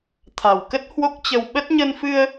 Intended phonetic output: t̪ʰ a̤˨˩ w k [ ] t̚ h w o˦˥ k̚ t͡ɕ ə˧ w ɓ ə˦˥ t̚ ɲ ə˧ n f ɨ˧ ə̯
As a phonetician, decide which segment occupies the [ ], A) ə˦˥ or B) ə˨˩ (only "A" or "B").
A